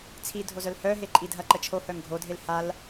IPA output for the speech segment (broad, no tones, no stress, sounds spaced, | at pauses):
t͡sʰ i dʱ o z œ l h œ ɦ e ǃʼ i dʱ ɐ ǃ ə t͡ʃʰ o h œ ŋ ɡʱ o dʱ e l h a l